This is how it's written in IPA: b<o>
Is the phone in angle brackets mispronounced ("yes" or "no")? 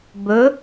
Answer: yes